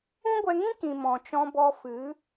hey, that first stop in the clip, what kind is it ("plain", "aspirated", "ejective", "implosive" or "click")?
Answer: plain